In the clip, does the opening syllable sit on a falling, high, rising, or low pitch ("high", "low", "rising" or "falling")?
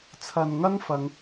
low